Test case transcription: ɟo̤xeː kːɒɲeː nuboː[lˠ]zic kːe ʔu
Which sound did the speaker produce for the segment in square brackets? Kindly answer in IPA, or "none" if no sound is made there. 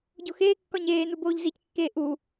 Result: ʎ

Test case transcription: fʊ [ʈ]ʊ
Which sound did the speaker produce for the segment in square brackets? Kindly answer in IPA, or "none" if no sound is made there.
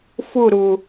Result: ɾ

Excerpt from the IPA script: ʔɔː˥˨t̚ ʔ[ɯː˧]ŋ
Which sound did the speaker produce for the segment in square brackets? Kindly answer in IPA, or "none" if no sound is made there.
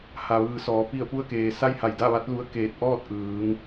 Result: ɯː˩˧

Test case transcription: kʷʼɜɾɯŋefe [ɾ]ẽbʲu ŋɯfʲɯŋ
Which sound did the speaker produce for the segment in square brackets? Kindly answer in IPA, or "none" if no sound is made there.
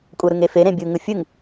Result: ɾ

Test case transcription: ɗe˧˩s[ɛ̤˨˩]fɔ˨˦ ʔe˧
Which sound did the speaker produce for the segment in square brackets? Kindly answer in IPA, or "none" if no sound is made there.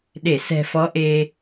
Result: ɛ̤˨˩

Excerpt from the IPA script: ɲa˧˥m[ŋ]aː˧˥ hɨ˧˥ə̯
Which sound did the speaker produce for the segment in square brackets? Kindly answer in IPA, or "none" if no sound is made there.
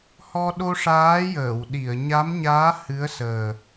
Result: ɲ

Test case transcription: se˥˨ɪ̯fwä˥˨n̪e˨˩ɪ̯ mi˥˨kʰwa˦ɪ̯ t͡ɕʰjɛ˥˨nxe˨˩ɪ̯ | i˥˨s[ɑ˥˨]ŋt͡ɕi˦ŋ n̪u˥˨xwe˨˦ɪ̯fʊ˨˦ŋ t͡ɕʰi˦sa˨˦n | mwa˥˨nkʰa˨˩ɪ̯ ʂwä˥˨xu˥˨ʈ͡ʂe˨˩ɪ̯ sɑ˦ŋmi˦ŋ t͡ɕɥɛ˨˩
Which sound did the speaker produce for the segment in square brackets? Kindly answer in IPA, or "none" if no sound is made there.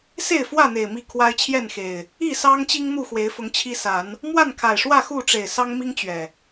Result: ɑ˦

